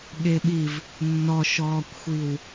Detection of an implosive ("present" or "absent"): present